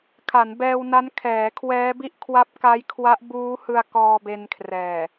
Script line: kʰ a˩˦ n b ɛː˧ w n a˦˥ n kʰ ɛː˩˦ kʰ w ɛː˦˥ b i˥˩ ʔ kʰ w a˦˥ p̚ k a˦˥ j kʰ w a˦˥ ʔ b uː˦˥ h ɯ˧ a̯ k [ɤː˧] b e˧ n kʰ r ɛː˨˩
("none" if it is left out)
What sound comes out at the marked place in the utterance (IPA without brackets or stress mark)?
ɔː˧